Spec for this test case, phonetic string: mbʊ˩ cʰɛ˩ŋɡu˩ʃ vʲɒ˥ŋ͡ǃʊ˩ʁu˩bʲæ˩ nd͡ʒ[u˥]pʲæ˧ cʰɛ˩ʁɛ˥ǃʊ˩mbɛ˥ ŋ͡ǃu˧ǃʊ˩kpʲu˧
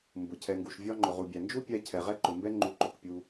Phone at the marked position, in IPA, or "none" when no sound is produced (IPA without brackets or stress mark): u˥